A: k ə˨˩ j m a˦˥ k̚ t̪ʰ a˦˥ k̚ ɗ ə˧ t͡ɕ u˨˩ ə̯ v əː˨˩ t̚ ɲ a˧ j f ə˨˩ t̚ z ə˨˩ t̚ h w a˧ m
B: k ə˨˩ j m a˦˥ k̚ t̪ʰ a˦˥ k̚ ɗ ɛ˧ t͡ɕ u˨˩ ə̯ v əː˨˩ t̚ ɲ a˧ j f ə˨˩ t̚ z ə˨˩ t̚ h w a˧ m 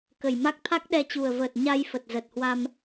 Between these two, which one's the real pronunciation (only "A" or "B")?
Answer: B